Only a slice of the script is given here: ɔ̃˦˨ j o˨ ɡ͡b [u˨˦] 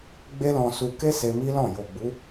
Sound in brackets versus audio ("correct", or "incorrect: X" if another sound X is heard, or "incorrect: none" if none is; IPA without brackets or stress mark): correct